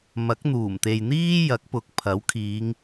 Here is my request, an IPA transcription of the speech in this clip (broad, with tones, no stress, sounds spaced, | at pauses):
m ɐ˨˥ k̚ n̪ uː˨˩ m t̪ e˨ j n̪ iː˥ j ɐ˨˥ k̚ p ʊ˨˥ k̚ pʰ ɐ˨˥ w kʰ iː˨˧ ŋ